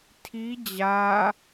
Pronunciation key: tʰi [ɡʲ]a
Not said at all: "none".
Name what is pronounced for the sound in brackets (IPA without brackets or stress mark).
d͡ʑ